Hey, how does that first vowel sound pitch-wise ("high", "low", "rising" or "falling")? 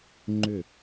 falling